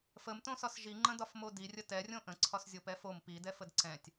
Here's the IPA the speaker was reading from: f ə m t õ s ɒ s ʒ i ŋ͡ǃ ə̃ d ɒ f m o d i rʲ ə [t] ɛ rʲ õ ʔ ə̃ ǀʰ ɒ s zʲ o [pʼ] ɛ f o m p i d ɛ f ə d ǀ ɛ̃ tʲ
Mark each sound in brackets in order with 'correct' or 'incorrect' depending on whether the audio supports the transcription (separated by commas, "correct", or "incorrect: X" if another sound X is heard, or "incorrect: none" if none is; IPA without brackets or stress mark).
correct, incorrect: p